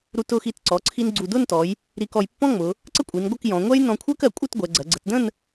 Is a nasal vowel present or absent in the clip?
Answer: present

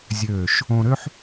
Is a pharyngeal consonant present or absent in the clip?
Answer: present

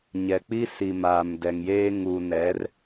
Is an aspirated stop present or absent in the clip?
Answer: absent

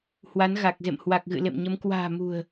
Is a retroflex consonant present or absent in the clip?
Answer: absent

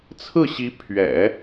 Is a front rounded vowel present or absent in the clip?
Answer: absent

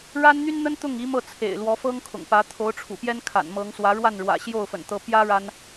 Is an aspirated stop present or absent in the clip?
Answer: present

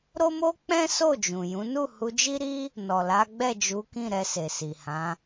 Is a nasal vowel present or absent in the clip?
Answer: present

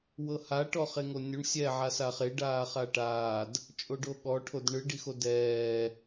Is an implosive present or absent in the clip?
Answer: present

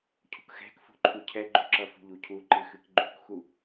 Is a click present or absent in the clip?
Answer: present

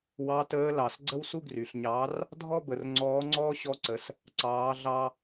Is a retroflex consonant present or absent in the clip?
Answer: absent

